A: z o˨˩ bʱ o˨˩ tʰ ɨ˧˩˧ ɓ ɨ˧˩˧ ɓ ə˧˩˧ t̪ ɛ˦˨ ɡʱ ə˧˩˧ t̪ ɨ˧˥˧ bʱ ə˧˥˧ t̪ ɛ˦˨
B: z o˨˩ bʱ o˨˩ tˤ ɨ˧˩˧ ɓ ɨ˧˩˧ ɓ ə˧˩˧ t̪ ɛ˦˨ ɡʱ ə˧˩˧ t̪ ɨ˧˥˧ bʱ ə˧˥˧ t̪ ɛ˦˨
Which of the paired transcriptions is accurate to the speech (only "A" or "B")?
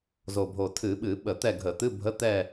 A